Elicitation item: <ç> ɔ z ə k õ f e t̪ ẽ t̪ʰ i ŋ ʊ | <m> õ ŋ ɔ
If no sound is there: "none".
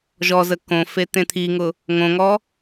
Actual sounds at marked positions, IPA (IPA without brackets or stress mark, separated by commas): ʒ, ŋ